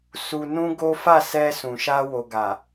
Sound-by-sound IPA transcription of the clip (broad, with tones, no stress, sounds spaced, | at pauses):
s u˧ n ũ˦ ɡ o˦ f a˦˨ s ɛ˧ s ũ˨ ʃ a˧ w o˨ ɡ a˨